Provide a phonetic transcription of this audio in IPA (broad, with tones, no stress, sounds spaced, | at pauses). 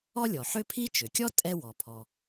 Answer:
ɔ˥ lʲ ɔ˩ ħ ø˥ pʰ i˥ t͡ʃ ø˩ kʲ ɔ˥ tʼ ɛ˥ w ɔ˩ pʰ ɔ˩